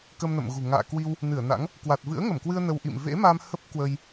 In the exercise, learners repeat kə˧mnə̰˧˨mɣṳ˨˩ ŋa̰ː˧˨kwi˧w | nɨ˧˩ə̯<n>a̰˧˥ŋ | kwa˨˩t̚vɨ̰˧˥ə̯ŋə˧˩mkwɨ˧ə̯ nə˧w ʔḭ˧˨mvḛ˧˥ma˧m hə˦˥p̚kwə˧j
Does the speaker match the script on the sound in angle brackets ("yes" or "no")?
yes